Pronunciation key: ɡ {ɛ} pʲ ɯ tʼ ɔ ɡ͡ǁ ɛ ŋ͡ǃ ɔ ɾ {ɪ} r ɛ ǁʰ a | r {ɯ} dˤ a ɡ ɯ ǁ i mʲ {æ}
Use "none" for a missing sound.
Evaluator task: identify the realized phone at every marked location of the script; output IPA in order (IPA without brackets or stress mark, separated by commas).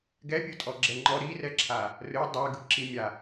ɛ, i, ɯ, a